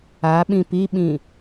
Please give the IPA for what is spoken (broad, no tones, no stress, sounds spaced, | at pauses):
a ɓ ĩ p i ɓ ĩ